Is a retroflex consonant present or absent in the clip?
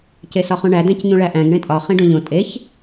present